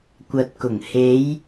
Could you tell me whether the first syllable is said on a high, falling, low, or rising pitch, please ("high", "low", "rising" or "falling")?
low